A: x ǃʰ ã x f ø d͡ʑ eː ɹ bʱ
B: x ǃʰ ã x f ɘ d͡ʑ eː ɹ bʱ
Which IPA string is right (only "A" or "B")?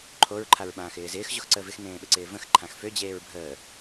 A